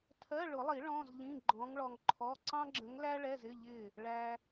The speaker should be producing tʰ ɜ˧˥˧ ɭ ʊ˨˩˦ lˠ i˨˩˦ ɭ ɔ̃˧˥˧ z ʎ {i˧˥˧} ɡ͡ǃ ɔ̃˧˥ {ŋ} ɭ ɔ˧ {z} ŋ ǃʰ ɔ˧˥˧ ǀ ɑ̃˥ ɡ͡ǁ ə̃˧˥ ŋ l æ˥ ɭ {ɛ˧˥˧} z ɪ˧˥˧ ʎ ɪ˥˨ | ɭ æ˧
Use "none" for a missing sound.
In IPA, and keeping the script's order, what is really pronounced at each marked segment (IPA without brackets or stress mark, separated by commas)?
ĩ˧˥˧, ŋ, none, ɛ˧˥˧